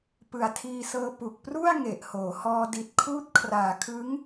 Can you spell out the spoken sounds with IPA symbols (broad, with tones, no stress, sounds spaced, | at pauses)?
p ɯ˨˩ a̯ tʰ iː˧ s ɤː˧ p u˨˩ k̚ p r u˥˩ a̯ ŋ e˨˩ ʔ h oː˩˦ h ɔː˧ d i˨˩ t̚ kʰ uː˦˥ t̚ kʰ r aː˨˩ kʰ ɯ˦˥ ŋ